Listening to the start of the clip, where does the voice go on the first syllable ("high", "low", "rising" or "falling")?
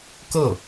falling